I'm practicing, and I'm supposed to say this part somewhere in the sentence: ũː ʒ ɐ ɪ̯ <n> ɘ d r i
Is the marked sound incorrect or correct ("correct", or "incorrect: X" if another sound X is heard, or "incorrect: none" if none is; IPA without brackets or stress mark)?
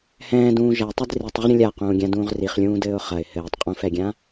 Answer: incorrect: tˤ